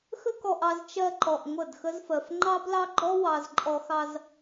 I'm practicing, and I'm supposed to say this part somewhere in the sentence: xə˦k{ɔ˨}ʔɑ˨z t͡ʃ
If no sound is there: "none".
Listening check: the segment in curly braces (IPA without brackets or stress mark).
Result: ɔ˨